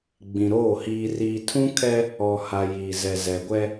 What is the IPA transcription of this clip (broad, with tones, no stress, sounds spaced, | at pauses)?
ɡ͡b ĩ˨ ɾ oː˦˨ h iː˨ r iː˨ tʰ ũ˦ kʰ ɛ˦ | ɔ˨ h a˨ j iː˨ z ɛ˨ z ɛ˨ ɡʷ ɛ˦